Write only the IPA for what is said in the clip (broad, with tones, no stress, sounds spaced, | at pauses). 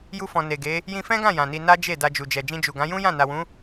j u˧ f ɔ̃˨ n e˨ ɡ e˨˦ | j ĩ˧ f ɛ̃˦ ɡ ã˦˨ j ã˨ n i˧ n a˦ d͡ʒ e˦˨ d a˧ d͡ʒ u˨ d͡ʒ ɛ˨ d͡ʒ ĩ˧ d͡ʒ u˨ ɡ ã˨˦ j ũ˦ j ã˦˨ n a˨ w ũ˨˦